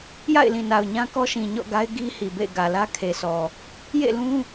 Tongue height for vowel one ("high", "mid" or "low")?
low